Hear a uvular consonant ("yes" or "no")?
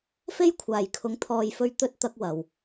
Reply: no